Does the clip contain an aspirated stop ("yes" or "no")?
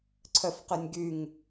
yes